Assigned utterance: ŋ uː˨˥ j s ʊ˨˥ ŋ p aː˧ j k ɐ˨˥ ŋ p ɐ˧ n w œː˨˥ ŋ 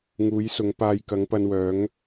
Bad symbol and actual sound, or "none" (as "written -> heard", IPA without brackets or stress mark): none